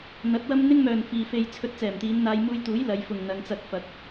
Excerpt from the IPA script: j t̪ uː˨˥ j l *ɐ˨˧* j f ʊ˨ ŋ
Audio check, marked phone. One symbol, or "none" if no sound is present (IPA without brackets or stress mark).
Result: ɐ˨˧